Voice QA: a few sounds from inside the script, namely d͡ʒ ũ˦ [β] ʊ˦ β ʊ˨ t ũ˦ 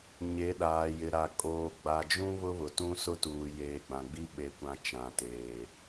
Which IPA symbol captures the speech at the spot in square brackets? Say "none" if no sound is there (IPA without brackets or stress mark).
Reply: β